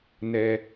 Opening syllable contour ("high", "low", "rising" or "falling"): low